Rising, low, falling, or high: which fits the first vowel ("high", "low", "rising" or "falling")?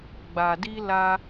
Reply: low